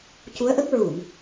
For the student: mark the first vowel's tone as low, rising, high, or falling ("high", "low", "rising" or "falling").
rising